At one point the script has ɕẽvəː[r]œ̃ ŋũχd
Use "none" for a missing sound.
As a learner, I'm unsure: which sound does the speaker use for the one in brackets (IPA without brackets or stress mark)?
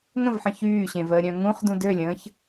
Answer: ɾʲ